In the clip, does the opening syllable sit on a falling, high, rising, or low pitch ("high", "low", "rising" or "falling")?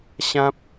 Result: high